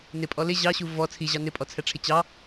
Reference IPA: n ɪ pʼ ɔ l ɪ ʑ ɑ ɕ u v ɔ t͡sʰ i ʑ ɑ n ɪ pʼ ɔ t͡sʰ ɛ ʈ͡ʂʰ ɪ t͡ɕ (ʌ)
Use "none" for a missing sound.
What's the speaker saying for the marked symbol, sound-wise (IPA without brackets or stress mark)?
ɑ